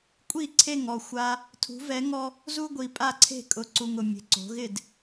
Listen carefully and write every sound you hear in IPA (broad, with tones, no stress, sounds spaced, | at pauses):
kʷʼ i˥˨ ǀʰ e˥˨ ŋ ɔ˥˨ xʷ a˦ | tʰ ṳ˨˦ v ɛ˨˦ ŋ ɔ˦ | z u˦ ɡʷ i˨ pʼ a˥˨ ǀʰ e̤˥˨ kʼ ʊ˨˦ ǀ u˨ ŋ ʊ˨ mʲ e̤˨ ǀ o̤˨˦ ɣ ɪ˥˨ d